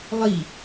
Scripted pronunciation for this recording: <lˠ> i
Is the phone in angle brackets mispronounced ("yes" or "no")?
no